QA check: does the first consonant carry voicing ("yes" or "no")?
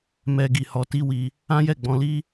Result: yes